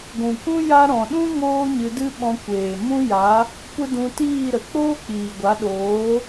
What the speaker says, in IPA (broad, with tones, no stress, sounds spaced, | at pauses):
ɡʷ ũ˨ k ũ˦ j a˦ ɾ ɔ̃˨ ɗ ũ˦ ŋ oː˦ ɲ ɨ˧ d ɨ˦ ɓ ɔ̃˧ kʷ eː˨ m ũ˦ j a˨˦ | kʷ ə˦ d ũ˧ t iː˦˨ ɾ ə˨ k͡p oː˦ k͡p iː˨ ɡʷ a˨˦ ɗ oː˨˦